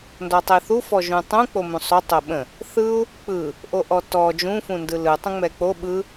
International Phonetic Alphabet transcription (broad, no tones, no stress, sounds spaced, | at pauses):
n d ɔ tˤ ə i̯ θ u f ɔ ʒ ũ tˤ ũ k͡p o m ũ sˤ o tˤ o ɓ ə̃ | θ ɯ u̯ | k͡p ɯ | ʔ o ʔ ɔ t ɔ d͡ʒ ũ f ũ n d ɯ l ɯ tˤ õ ŋ͡m ɛ k͡p o ɓ ɯ